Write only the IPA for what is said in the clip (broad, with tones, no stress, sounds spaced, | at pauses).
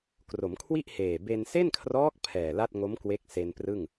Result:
k r o˩˦ m kʰ w i˥˩ ʔ h eː˨˩ b e˧ n s e˥˩ n kʰ r ɔː˦˥ k̚ pʰ ɛː˨˩ l a˥˩ t̚ ŋ o˦˥ m k w e˦˥ k̚ s e˧ n p r ɯ˥˩ ŋ